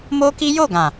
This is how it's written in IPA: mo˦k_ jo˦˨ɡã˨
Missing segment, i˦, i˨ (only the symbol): i˦